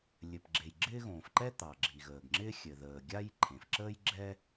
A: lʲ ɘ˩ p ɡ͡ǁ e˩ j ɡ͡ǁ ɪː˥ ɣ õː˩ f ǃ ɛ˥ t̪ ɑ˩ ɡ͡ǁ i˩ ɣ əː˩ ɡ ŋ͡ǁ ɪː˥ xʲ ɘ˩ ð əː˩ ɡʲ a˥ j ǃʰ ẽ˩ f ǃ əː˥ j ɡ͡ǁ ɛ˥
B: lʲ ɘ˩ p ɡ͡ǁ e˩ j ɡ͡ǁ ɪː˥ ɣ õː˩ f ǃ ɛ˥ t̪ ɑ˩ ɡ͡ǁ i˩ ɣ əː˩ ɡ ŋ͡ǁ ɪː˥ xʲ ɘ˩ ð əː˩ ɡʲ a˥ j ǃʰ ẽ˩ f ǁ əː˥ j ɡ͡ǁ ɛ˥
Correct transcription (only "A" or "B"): B